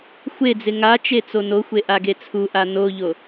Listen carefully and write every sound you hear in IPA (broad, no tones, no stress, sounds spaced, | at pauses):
xʷ e d͡z ɪ ŋ a t͡ʃ e t͡s o n o xʷ e ʔ a ɡ e t͡sʰ u ʔ a n o ʎ o